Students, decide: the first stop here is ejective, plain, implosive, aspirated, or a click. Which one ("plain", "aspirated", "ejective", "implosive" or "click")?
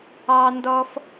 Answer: plain